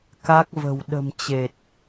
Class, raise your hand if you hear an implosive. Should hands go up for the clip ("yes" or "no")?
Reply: yes